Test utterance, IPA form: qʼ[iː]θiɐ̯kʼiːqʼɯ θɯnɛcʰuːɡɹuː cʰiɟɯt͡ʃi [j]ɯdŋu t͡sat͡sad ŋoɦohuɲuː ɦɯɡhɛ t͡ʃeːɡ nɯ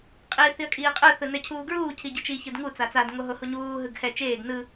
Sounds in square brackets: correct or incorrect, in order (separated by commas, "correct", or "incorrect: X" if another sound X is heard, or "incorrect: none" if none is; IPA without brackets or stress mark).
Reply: correct, incorrect: ç